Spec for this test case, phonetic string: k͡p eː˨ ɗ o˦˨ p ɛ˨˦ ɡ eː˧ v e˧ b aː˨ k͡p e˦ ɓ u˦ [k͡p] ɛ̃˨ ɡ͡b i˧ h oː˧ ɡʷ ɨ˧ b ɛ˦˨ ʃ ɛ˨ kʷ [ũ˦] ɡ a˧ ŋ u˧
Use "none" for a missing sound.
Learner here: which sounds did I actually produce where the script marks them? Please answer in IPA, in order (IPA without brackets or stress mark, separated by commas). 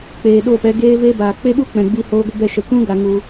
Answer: k͡p, ũ˦